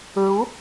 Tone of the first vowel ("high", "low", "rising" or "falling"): rising